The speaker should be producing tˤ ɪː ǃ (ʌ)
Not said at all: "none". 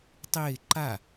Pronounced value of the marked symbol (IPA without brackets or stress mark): a